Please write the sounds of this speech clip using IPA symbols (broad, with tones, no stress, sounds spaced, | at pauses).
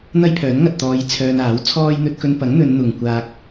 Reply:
n̪ ɐ˥ j pʰ œː˨˥ n ŋ ɐ˨ t̚ t̪ ɔː˧ j t͡sʰ œː˧ n aː˨˥ w t͡sʰ ɔː˥ j n̪ ɵ˧ t̚ k ɵ˧ n p ɐ˨˥ ŋ n̪ ɵ˨˧ n n̪ ʊ˨ ŋ kʷ aː˧ k̚